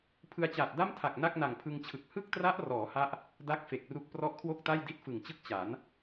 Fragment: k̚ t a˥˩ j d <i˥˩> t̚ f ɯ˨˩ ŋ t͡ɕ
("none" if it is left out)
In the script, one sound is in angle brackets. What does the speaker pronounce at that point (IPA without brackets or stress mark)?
i˥˩